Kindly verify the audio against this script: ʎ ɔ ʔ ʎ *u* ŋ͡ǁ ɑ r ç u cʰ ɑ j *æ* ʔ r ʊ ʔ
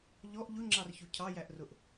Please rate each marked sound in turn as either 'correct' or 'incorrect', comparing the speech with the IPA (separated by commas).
incorrect, correct